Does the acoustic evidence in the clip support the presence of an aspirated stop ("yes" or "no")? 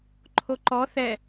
yes